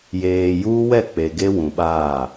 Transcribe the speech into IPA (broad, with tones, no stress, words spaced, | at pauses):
jeː˨juː˦wɛ˦˨ k͡pe˨ ɡe˦wũ˨ɓaː˦˨